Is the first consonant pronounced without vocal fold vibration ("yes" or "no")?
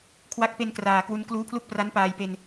yes